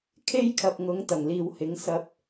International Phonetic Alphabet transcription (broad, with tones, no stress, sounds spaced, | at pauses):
kʰ e˥ j kʰ ɐ˨ p̚ ŋ ʊ˨˥ ŋ t̪ ɐ˨˩ ŋ l iː˨ w h ɪ˨˥ ŋ s ɐ˧ p̚